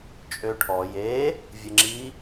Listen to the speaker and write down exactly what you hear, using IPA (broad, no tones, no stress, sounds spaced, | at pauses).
t͡ʃʼ ø ʈʰ ɔ j e | vʲ ə ŋ͡ǁ i